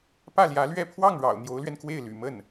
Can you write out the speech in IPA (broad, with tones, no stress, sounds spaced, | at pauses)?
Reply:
p ä˥˩ l j ä˧˥ l ɥ ɛ˥˧ pʰ w ɑ˥˩ ŋ ɻ ɑ̰˨˩ ʊ̯ n̪ j o˧˥ ʊ̯ l ɥ ɛ˧ n k w e˥˩ ɪ̯ l y̰˨˩ m ə˥˩ n